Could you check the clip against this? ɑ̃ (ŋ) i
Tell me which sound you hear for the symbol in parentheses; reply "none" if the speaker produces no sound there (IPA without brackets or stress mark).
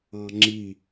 ŋ͡ǁ